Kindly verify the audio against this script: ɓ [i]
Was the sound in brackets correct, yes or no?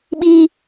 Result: yes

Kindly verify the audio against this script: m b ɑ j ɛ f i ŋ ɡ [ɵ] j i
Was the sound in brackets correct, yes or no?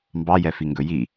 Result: yes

